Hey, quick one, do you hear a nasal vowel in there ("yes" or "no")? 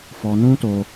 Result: yes